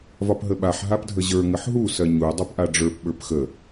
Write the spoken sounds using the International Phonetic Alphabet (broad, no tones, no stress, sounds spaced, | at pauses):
v ɒ p ɦ ə ɓ a ħ ɦ a p dʱ ə ʑ ə˞ ŋ ə ħ ɦ u s ɜ ɲ u dˤ u p ʔ a ɖ͡ʐ ə˞ p ɓ ə˞ p x ə